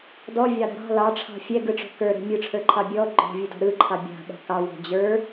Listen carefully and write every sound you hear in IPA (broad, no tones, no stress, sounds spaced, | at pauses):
d ɔ vʲ ɑ ɾ a̤ ɾ ɑ̤ l ɑ ʈ͡ʂʰ ɑ̤ fʲ ɛ ɡ ɯ ʈ͡ʂ ɔ̤ k ə˞ ɾ ɛ̤ mʲ ɯ ʈ͡ʂʰ ə˞ ǃʰ ɑ bʲ ɔ ɡ͡ǃ ɔ̤ vʲ ɯ d ɔ̤ ɾ ɯ ǃʰ ɑ bʲ a̤ ɓ ɔ̤ k ɑ w ɔ̤ d͡ʑ ə˞